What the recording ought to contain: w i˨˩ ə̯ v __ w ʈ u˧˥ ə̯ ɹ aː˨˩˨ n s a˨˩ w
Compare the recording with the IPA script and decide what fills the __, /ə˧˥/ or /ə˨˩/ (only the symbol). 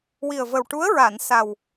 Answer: ə˨˩